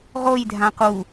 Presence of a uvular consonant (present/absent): present